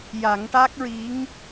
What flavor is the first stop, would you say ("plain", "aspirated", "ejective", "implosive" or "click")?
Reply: plain